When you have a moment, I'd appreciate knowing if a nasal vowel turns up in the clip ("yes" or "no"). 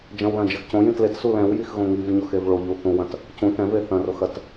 yes